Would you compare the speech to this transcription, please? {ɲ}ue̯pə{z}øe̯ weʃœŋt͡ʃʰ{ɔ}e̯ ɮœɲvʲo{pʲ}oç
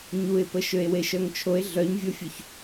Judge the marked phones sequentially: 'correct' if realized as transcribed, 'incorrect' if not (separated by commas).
correct, incorrect, incorrect, incorrect